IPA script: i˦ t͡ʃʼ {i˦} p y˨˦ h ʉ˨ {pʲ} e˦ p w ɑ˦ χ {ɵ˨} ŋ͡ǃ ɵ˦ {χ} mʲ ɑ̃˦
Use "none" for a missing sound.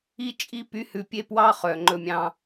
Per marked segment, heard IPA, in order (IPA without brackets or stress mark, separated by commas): i˦, pʲ, œ˨, none